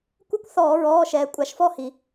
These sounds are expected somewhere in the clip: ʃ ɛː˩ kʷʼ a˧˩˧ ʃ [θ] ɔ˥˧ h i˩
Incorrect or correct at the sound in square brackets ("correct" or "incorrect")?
incorrect